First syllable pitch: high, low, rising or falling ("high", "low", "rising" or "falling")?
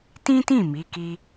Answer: high